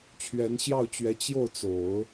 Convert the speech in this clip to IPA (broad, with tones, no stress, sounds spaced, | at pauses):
t͡ɕʰ ɥ ɛ˧˥ n ɕ j ɑ˥˩ ʊ̯ t͡ɕ ɥ ɛ˧˥ t͡ɕ j o˥˩ ʊ̯ t͡s o˨˩˦ ʊ̯